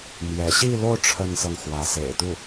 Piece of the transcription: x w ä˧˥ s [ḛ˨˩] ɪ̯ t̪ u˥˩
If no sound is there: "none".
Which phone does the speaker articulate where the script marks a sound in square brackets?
ḛ˨˩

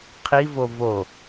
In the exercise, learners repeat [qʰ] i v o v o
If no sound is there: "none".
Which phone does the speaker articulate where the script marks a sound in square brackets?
qʰ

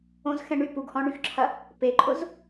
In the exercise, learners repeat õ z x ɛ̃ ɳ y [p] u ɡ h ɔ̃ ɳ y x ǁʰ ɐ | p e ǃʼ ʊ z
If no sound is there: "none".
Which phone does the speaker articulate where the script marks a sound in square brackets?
p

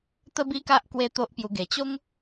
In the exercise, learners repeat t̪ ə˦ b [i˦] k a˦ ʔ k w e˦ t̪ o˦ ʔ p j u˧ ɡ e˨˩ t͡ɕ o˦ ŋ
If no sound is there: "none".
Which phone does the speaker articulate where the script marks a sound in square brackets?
i˦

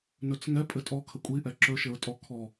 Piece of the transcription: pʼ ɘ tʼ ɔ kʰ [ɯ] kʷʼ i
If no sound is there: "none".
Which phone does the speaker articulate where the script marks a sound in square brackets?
ə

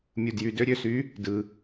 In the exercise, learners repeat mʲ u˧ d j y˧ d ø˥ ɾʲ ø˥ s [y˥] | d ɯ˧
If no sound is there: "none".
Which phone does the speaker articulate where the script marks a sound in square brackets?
y˧˥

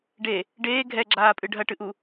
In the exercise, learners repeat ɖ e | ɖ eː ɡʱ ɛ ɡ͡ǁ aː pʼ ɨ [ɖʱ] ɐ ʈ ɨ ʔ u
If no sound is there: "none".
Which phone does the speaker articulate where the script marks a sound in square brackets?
ɖʱ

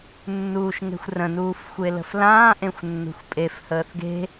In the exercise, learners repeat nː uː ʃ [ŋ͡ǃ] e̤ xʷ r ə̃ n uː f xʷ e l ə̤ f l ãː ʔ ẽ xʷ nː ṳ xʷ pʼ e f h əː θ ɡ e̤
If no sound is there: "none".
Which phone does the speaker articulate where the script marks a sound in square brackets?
ŋ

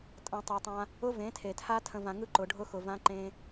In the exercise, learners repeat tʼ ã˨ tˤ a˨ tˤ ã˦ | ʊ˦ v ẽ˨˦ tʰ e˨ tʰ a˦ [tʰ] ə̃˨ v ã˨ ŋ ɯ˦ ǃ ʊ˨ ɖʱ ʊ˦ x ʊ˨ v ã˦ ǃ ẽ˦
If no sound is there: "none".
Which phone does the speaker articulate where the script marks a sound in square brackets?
tʰ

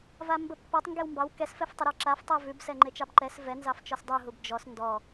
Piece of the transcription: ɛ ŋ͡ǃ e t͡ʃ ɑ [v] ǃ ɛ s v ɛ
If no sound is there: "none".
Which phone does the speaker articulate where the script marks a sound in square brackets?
b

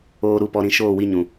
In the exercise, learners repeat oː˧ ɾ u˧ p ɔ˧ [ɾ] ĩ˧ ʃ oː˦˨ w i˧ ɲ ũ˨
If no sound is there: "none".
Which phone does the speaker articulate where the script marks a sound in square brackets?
ɾ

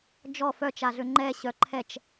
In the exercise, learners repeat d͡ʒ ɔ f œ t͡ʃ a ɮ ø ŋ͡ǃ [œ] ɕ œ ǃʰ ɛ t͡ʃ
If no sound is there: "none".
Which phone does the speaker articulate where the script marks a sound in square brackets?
ɛ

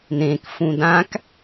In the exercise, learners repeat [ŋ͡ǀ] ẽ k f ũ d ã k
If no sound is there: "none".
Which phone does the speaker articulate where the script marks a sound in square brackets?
n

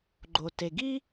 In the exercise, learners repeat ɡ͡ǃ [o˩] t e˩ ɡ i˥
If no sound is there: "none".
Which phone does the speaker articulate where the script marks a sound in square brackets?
o˩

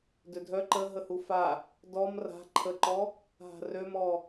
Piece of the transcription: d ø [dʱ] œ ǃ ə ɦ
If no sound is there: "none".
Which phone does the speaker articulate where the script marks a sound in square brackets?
dʱ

